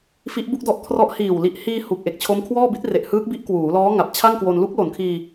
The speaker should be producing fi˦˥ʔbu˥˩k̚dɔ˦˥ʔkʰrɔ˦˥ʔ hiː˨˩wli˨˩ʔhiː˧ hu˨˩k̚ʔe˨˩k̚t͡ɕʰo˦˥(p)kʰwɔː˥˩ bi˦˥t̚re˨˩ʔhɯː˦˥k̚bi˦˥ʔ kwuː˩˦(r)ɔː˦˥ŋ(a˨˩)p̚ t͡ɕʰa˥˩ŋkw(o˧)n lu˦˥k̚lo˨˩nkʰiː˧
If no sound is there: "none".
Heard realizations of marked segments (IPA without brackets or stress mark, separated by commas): m, l, a˨˩, o˧